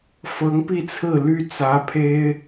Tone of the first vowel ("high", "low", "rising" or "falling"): rising